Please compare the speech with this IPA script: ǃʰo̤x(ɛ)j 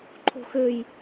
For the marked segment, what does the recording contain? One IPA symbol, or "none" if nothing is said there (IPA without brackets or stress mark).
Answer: ø